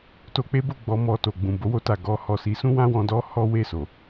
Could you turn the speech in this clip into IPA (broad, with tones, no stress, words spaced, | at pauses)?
to˧k͡pe˦bo˦˨ ɡ͡bɔ˧mɔ˨to˨ɡ͡bũ˨ bo˧wo˧ta˨ ɡɔ˧hɔ˨si˨˦ sũ˦wã˦wɔ̃˧ dɔ˦hɔ˦we˦˨so˨